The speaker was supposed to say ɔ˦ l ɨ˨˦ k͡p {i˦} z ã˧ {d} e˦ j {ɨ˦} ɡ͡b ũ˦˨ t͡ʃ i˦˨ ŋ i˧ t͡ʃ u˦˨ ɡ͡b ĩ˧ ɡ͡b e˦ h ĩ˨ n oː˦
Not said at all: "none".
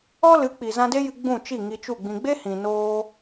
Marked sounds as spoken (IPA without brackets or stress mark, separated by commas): i˨, d, ɨ˧